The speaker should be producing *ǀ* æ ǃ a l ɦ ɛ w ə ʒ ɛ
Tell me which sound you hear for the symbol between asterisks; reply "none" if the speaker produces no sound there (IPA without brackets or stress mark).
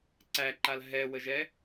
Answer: ǀ